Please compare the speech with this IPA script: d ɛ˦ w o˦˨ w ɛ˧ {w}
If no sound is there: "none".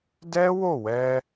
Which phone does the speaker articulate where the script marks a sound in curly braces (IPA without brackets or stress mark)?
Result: none